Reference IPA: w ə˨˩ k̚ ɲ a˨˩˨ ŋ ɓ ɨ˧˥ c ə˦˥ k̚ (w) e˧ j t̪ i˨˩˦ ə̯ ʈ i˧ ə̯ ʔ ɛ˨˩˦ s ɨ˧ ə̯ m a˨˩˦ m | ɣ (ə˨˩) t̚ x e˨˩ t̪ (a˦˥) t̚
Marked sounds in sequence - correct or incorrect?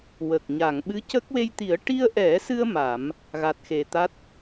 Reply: correct, incorrect: a˨˩, correct

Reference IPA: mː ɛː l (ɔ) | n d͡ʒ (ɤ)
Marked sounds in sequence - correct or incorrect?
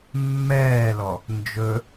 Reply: correct, incorrect: ɵ

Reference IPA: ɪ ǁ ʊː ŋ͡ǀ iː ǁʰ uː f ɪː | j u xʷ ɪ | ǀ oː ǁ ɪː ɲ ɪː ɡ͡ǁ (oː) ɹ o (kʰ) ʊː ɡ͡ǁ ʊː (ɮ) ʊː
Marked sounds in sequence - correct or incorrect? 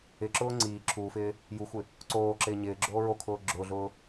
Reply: correct, correct, correct

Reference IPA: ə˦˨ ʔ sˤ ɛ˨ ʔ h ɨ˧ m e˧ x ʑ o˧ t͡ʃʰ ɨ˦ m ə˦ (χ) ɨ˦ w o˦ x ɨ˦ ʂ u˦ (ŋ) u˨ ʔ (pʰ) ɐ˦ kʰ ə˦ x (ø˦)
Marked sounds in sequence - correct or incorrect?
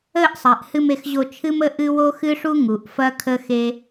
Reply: incorrect: ʔ, correct, incorrect: f, incorrect: e˦

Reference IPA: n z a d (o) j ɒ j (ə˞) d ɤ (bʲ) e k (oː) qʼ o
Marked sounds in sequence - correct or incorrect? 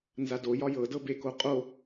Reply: correct, incorrect: ɤ, incorrect: b, incorrect: o

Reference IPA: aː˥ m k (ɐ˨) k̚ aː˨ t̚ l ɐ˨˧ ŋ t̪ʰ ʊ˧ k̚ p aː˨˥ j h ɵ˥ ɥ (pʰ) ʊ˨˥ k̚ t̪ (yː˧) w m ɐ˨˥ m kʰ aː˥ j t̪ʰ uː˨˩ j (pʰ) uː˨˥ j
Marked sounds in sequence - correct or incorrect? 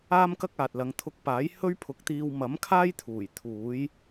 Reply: incorrect: ɐ˥, correct, incorrect: iː˧, incorrect: t̪ʰ

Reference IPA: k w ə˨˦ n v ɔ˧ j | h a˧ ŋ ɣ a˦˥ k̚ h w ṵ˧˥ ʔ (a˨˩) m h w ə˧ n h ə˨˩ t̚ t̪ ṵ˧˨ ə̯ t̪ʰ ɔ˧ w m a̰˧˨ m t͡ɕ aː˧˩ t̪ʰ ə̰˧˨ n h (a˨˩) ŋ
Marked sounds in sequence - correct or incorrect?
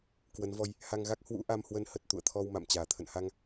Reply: incorrect: a˧, incorrect: a˧

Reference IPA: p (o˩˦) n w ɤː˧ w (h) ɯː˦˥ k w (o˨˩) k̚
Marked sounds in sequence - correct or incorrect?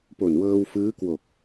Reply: incorrect: o˨˩, incorrect: f, correct

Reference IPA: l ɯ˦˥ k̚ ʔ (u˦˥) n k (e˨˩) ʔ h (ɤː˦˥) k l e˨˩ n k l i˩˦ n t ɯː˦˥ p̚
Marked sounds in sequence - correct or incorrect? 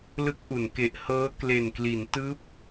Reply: incorrect: u˩˦, correct, correct

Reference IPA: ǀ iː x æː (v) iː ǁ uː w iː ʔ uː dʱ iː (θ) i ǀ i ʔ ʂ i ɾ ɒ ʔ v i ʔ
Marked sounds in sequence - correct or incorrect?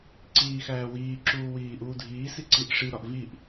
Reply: incorrect: w, incorrect: s

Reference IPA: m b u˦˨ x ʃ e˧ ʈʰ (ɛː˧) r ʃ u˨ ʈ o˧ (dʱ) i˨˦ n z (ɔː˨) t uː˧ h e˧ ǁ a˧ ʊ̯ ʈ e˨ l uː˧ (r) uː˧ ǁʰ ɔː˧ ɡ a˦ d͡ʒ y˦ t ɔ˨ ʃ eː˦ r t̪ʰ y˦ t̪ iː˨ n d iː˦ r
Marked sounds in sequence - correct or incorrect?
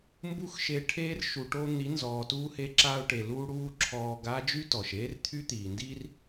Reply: incorrect: eː˧, incorrect: n̪, correct, incorrect: ɽ

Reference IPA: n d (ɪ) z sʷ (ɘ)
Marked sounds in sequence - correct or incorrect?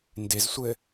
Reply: correct, correct

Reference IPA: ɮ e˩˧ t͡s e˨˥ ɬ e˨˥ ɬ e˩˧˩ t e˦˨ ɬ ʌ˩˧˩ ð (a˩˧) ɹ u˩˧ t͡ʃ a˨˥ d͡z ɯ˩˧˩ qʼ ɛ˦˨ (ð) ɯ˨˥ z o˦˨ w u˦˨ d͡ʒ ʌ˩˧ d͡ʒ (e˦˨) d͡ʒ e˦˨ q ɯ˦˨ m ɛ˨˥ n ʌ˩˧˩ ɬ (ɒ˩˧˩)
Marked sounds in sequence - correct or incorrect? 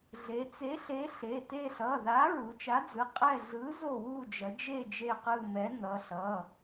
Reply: incorrect: a˨˥, incorrect: ɮ, correct, incorrect: ʌ˩˧˩

